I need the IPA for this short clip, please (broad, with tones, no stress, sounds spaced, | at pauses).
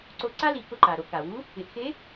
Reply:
ǀ o˧ ǀ a˥ l i˩˧ k ʊ˧ ǃ a˩ ɾ o˩˧ k a˩ w u˧˥ | ɪ˩˧ ʔ x e˧˥